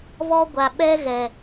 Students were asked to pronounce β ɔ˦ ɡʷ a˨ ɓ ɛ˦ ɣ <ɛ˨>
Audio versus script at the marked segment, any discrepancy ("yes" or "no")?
no